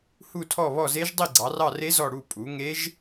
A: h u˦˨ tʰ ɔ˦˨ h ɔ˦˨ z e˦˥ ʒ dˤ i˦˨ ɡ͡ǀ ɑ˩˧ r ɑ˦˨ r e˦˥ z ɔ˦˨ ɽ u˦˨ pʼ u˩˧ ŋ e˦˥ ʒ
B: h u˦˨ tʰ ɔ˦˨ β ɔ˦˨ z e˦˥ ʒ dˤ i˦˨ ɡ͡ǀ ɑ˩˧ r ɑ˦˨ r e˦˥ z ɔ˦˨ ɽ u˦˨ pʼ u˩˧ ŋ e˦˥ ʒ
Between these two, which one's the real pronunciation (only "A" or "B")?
B